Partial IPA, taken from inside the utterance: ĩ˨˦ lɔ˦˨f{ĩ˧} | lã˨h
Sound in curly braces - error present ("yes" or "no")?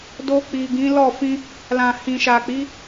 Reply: no